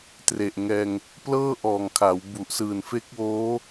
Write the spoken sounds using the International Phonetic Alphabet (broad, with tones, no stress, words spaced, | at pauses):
tre˨˩ʔŋɛː˧ŋ | plɤː˥˩ʔɔː˨˩ŋkʰa˩˦w bu˨˩ʔ sɯː˨˩nfe˦˥k̚woː˦˥